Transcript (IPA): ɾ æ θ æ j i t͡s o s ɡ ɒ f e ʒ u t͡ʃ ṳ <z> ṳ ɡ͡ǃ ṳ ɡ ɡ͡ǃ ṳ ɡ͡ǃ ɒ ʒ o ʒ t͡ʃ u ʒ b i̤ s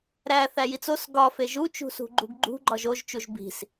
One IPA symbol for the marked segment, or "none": s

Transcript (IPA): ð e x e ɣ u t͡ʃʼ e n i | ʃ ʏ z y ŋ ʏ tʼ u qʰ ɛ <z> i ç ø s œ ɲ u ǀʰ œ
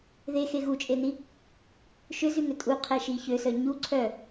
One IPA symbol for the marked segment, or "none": ʃ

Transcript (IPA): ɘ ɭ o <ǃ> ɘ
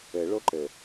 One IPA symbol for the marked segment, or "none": ǃ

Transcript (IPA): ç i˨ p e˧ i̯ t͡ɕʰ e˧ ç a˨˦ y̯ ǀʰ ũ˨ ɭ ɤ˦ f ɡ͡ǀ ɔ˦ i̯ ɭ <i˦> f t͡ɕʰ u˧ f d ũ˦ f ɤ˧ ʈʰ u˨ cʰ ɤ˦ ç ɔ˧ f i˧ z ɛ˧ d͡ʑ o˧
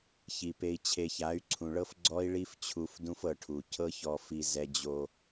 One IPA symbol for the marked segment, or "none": i˦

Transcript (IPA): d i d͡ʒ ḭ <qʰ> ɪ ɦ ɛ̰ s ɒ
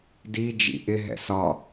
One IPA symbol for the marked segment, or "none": ʔ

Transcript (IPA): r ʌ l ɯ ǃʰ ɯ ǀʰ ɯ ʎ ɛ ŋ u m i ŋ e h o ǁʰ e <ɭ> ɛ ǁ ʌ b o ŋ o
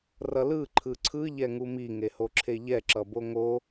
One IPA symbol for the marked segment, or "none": ʎ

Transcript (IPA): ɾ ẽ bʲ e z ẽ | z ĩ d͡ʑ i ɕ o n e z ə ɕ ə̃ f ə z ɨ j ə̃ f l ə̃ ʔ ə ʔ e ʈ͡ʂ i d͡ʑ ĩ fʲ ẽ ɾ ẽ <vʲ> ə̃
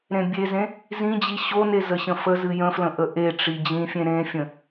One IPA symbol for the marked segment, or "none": fʲ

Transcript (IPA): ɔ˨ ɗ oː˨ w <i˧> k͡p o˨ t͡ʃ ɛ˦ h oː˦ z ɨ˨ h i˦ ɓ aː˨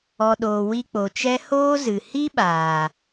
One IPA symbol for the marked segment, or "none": i˧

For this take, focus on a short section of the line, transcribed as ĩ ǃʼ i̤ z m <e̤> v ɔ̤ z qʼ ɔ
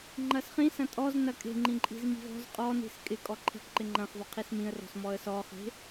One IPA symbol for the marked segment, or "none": i̤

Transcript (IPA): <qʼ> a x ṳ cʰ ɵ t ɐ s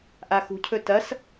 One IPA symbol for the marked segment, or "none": ʔ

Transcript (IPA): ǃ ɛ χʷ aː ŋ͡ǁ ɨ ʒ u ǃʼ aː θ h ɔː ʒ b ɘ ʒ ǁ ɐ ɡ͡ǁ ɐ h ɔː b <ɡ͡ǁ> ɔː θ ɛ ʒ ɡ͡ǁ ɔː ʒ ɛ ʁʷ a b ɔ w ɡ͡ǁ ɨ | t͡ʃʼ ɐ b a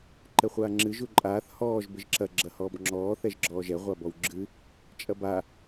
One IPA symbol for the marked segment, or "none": ŋ͡ǁ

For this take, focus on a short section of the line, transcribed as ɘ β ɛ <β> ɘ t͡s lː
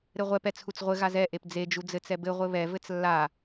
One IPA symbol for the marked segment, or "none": v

